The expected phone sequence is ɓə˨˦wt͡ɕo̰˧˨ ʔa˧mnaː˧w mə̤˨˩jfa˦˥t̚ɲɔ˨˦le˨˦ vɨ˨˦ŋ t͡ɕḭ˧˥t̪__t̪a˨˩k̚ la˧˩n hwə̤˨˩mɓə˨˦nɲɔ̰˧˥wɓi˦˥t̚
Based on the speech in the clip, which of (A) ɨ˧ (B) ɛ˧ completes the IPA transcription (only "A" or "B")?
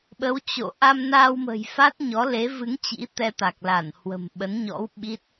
B